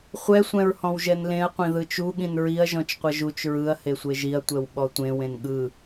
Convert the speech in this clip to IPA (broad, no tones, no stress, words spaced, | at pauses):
χʷɛ sʷɛ̃ɹhɔ̃wʒɛnlẽɐ̯ qʷĩðɯt͡ʃu ɠĩnɹiɐ̯ ʒɔ̃t͡ʃqʷʌʒut͡ʃ ɹɯɐ̯ hesʷeʒiɐ̯ tʷɛwɓɔtʷẽ wẽnɠɯ